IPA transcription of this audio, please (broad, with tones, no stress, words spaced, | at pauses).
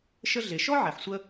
ʃə˥ɮe˩ ʃɔ˥ʕɛ˩ħ sʷə˥